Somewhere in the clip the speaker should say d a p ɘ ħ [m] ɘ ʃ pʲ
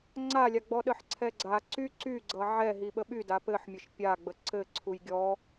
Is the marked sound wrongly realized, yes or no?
yes